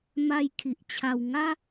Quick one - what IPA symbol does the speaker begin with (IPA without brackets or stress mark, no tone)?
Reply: m